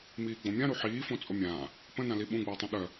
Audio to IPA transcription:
miːɡ͡bõmʲãɾu ħiːfõ t͡sʼomʲãː | pə̃nãli ɓũɡ͡bəːtˤũ ɗœ

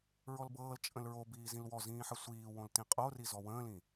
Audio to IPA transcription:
ɹɔlbɤːl t͡ʃʼə̃lɹobiː zĩlwɔzĩːħə sʷiː wõltĩqʼo rizɔwə̃ːlĩ

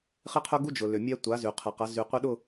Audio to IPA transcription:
χɪ˦qʰʊ˦ɡu˦ d͡ʒʊ˨ lʏ˨mʲɛ˦ tʷa˨˦ zy˨ qʰɐ˨qɐ˨˦ zy˨ qʷɪ˦ɗʊ˦˨

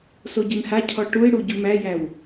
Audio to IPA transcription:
soɟemha cʰɔʈuɪ̯ɽu ɟumæjæw

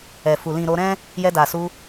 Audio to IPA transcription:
ɛ˨fu˨ lĩ˨ ɾo˧ɾɛ̃˦ | jɛ˧da˨su˧

